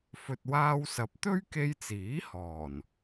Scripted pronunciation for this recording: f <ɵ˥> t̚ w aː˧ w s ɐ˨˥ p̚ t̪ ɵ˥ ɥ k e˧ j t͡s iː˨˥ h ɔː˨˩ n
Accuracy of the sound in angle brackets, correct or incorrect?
incorrect